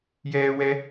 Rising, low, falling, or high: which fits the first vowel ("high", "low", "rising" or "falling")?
high